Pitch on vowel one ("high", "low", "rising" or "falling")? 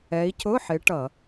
rising